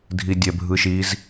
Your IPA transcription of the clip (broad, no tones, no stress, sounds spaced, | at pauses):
dʱ i dʲ ɛ bʱ ɯ ʃ i z